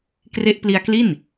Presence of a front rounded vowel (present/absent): absent